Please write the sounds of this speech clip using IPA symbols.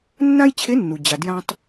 nː ã˥ j t͡ɕʰ e˧˥ nː u˩ d͡ʑ a˩ d j ã˧ tˤ

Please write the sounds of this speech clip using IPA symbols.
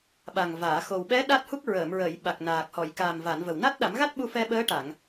ɓ a˨˩ ŋ v aː˨˩˨ x o˨˩ w ɓ ɛ˧˥ ɗ a˦˥ t̚ h u˦˥ k̚ ɹ əː˨˩˨ m ɹ əː˨˩˨ j ɓ a˨˩ k̚ n aː˨˩ k̚ h ɔ˨˩˨ j k aː˨˩ m v a˨˩˨ n v ə˨˩ w n a˦˥ t̚ ɗ a˨˩˦ m ɣ a˦˥ t̚ ɓ u˧ f ɛ˧ ɓ əː˧˥ ʈ a˨˩˨ ŋ

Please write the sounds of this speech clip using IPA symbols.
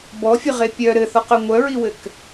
b ɔ fʲ ɨ ʁ e pʲ œ ɾ ɘ θ ɔ q œ ŋʷ œ ɹ i w ɘ k

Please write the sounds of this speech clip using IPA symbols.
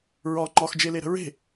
ɹ ɒ ŋ͡ǃ ɒ x d͡ʒ e l e ɾ ə̤ ɹ e̤

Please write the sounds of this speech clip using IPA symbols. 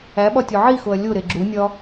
æ ɓ ɒ tʲ o ʕ i x o ɐ̯ lʲ o ɾ e ɡ͡ǁ u nʲ ɒ

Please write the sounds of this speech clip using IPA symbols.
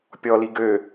pʲ ɔ l i ɡ ø

